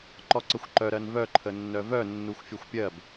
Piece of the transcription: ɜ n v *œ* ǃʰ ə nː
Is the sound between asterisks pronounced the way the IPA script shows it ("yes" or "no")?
yes